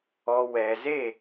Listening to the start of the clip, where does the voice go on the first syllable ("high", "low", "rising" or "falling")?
low